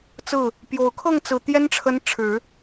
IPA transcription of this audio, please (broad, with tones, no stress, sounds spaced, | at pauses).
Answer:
t͡s ɹ̩˥˩ | p j o˨˩ ʊ̯ kʰ ɤ˥˩ ŋ t͡s ɹ̩˨˩ t̪ j ɛ˥ n ʈ͡ʂʰ ə˧˥ n ʈ͡ʂʰ ɻ̩˨˩˦